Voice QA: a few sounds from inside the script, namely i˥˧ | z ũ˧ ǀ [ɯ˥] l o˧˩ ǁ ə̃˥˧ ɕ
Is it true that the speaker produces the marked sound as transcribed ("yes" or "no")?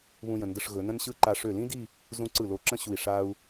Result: no